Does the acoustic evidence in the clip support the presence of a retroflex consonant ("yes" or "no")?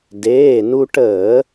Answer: yes